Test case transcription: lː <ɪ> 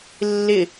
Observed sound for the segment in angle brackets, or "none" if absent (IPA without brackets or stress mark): ɪ